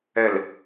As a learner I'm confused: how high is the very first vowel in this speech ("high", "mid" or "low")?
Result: mid